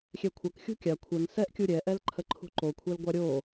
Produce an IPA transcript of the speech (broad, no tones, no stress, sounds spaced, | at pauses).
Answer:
xʲ ɛ kʷʰ ɐ k xʲ ṳ kʲ a kʷʰ ɛ ŋ s ɛ ʔ kʲ u ɾʲ ɛ ʔ ɛ l ǃʰ ə ǃʰ ṳ ǃ o kʷʰ ɛ l ɡʷ a ɾʲ o